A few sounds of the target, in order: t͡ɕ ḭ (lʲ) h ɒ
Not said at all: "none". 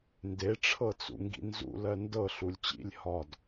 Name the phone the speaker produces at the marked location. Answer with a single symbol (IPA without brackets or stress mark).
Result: lʲ